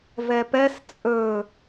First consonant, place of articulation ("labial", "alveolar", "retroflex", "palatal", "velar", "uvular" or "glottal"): labial